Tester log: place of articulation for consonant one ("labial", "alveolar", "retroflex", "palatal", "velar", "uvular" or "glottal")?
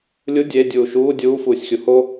alveolar